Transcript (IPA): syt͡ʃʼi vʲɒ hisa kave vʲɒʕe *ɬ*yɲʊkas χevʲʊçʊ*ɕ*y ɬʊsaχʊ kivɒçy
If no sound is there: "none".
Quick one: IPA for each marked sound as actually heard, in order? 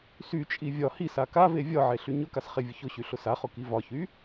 ɬ, ɕ

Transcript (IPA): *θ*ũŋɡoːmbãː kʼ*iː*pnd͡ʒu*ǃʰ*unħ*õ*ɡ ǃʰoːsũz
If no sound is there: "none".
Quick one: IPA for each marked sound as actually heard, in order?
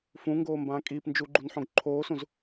f, iː, ɡ͡ǃ, õ

